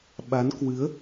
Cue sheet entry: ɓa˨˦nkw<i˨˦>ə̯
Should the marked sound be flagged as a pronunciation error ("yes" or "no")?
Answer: yes